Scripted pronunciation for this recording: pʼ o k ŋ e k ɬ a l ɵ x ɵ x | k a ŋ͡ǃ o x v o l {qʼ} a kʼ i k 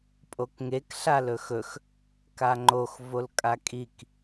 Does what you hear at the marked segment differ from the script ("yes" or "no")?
yes